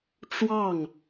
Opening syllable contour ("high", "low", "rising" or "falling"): falling